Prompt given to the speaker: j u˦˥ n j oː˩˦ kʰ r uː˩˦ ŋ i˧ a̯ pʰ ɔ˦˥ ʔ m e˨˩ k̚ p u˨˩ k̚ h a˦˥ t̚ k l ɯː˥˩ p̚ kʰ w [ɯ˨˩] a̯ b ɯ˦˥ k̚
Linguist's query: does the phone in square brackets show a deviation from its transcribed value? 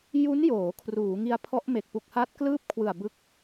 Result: no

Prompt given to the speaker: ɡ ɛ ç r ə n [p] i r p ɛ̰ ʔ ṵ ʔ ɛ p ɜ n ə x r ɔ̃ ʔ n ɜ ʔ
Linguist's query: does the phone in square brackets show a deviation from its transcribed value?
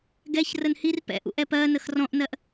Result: yes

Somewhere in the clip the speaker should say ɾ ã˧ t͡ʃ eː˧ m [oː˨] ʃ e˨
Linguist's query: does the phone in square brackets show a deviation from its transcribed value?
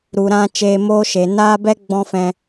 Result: yes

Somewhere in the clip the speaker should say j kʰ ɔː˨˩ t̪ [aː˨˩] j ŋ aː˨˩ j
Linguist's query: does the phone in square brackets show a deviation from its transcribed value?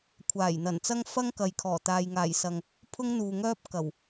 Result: yes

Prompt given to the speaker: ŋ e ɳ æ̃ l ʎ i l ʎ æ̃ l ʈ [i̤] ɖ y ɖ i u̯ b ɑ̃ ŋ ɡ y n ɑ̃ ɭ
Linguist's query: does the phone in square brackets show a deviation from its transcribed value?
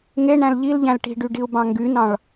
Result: no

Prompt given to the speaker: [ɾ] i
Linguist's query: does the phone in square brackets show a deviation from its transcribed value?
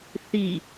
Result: yes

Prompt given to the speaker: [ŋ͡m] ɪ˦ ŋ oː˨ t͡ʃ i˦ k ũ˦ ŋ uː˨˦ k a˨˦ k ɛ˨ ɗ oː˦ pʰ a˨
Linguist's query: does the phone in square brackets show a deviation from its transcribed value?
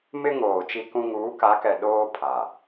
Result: yes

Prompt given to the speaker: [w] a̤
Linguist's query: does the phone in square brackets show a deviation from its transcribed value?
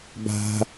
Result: yes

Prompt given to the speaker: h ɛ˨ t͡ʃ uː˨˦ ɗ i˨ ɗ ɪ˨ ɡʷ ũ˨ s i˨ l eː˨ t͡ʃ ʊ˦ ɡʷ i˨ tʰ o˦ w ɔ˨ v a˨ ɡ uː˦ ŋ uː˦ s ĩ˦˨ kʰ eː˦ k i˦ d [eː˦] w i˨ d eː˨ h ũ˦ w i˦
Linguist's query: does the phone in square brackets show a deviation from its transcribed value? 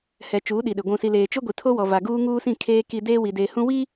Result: no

